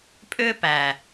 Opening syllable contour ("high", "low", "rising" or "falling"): high